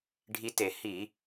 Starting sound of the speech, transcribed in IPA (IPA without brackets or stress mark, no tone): ɖʱ